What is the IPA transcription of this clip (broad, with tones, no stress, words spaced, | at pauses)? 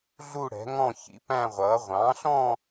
ɮu˥˧ɽɛ̤˩˥ŋɔ̃˥˧ çḭ˩˥pæ̃˥˧ʁʷʌː˩˥ ʁʷɑ̃˩˥ɬɔ̃˥˧